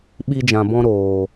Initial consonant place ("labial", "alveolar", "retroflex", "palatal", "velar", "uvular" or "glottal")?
labial